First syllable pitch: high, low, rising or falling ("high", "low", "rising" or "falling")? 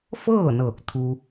falling